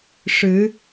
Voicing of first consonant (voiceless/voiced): voiceless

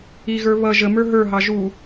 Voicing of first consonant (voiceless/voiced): voiced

